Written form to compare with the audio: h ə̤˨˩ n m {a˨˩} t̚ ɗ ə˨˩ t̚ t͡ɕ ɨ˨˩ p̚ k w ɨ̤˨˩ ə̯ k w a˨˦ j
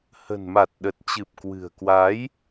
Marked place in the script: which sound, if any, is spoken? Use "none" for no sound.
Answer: a˨˩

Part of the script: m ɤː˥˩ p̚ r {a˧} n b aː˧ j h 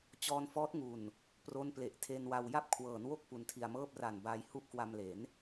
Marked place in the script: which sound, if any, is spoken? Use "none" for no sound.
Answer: a˨˩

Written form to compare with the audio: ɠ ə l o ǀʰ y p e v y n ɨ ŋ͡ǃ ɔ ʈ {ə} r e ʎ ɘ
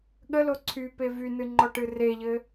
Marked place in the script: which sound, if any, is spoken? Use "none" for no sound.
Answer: ɨ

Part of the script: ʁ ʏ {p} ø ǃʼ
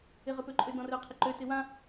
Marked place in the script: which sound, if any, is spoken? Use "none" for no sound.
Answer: p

